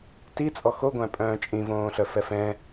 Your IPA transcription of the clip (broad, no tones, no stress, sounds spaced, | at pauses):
t i t͡sʼ ɔ x o ɡʷ æ̃ pʼ œ̃ː t͡ʃʼ ĩ v õː ɬ œ f ɛ f ɛ̃